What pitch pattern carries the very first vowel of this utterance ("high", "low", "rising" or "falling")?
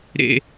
high